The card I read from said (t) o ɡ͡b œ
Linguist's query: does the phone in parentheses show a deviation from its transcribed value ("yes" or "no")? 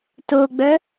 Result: no